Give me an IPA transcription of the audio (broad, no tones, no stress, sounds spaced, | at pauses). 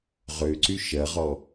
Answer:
ʁ ø ǀ y ʃ ɐ ʁ ɔ